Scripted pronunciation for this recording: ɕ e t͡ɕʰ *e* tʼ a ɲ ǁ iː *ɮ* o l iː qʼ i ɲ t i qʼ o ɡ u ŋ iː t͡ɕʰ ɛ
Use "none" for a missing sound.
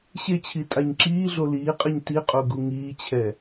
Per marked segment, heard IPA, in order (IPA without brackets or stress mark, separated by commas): i, ɮ